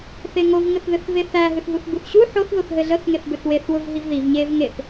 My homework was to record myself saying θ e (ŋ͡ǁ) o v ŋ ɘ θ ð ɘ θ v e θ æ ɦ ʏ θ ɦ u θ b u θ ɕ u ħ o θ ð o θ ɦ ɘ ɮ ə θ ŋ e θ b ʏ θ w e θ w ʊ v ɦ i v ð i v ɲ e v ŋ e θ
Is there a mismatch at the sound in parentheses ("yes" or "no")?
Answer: yes